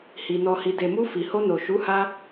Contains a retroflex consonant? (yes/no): no